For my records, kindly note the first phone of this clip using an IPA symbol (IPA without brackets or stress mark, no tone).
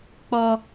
k͡p